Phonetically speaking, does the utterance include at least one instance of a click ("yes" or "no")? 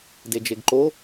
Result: yes